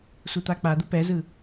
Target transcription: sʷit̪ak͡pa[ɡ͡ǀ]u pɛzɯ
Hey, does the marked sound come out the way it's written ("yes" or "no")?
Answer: no